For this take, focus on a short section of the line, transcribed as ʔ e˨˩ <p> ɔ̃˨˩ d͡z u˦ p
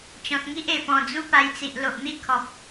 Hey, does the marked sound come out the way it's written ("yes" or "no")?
yes